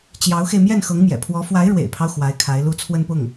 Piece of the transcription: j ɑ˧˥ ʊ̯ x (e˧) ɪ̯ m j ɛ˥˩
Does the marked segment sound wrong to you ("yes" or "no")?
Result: no